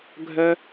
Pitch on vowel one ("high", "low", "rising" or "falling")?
high